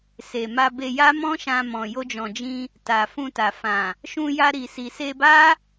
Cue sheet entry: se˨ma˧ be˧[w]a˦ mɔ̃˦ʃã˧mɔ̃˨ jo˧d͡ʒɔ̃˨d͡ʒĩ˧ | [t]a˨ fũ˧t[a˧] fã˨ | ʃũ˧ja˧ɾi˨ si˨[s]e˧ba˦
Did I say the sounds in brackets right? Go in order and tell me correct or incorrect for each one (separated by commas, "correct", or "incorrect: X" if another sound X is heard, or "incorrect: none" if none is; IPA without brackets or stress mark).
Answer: incorrect: j, correct, incorrect: a˨, correct